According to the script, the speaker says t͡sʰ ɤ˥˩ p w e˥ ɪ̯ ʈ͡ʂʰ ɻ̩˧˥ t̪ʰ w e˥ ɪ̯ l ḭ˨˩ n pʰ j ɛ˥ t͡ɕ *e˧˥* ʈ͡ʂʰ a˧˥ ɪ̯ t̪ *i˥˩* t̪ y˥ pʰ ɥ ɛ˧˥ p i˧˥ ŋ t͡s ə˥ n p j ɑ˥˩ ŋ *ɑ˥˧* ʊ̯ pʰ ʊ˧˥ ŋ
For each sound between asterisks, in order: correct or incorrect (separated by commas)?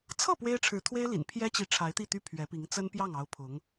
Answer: incorrect, correct, incorrect